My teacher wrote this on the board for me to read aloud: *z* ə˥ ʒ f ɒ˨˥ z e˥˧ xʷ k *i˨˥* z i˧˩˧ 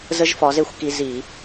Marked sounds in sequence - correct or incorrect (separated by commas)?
correct, incorrect